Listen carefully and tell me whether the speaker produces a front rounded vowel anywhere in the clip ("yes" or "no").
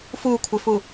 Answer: no